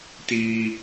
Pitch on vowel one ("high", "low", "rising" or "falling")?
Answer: high